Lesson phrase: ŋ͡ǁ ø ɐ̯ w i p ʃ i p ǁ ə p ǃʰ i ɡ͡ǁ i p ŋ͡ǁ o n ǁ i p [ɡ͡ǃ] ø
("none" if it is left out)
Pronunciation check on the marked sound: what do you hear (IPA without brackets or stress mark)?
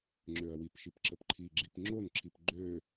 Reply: ɡ͡ǃ